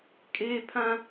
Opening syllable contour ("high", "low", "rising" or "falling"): high